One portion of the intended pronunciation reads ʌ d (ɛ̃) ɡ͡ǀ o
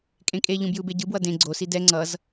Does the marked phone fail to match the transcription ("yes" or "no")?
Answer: yes